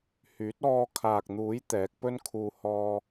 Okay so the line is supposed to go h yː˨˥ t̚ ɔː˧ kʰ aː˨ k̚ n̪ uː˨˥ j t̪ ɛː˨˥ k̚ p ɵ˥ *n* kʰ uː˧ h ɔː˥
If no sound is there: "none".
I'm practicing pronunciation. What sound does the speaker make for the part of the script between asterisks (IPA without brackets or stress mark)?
n